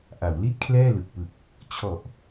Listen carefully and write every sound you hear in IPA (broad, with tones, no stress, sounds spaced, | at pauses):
ʔ a˩˦ w l i˥˩ t̚ kʰ l ɛː˥˩ l ɯ˨˩ k̚ p ɯ˨˩ k̚ | t͡ɕʰ ɔ˨˩ ʔ